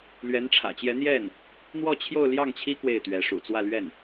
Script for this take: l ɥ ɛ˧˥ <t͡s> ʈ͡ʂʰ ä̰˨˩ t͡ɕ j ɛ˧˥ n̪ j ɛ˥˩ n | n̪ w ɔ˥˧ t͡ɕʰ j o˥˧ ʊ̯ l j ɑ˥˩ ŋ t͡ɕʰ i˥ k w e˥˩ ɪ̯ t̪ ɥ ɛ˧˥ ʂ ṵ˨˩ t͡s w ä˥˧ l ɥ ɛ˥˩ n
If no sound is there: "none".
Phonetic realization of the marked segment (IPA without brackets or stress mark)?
n